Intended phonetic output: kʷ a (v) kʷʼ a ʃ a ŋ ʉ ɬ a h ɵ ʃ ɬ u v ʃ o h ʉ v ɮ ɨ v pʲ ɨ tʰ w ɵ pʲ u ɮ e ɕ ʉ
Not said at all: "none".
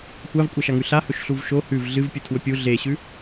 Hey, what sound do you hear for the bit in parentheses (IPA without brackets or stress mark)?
v